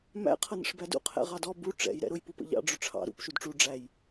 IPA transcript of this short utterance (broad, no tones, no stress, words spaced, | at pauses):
mæ̰ qʰʌnə̰ʂbædṵ qʰɛ̰ʁɑdɔ bu ʈ͡ʂɛ̰j ɾɛ̰ɾʊj pupə̰ʎɑ̰ ɖ͡ʐʊʈ͡ʂʰɑ̰ ɾṵp ʃudʈ͡ʂu ɖ͡ʐæj